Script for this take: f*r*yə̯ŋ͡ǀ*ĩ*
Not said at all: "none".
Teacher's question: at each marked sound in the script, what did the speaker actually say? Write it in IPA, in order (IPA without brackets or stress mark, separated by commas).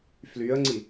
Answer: l, i